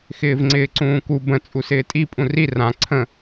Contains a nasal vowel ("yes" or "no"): yes